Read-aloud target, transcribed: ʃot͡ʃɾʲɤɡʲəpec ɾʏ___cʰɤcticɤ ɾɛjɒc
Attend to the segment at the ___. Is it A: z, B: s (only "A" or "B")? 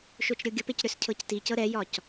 B